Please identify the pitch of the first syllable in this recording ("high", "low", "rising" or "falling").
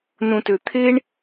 low